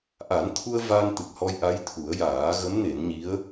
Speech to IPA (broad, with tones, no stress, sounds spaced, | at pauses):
ʔ a˨˩˦ n t̪ʰ u˧ ə̯ v a˧ n t̪ ɨ˨˩ k̚ h ɔ˧ j ʔ a˧˥ j t̪ʰ u˨˩˦ ə̯ j aː˨˩˦ ɣ ə˧˥ m n e˨˩˦ n ɲ i˧˥ ə̯